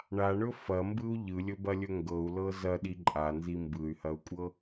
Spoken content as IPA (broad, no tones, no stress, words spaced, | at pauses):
ɳaɳɵ fɐmbɯu̯ ʎɯlʲɵbɐlʲɵ ŋɡɤu̯lɤ zɐɗi ǃʼanzi mbɯy̯hɐu̯kʷʼɤ